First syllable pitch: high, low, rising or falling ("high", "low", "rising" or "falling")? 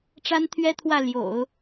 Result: high